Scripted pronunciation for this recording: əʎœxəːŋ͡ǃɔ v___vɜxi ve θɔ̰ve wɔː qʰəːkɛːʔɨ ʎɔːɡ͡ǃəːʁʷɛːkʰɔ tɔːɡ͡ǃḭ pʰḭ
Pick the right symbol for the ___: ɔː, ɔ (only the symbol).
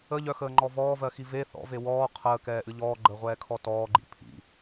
ɔː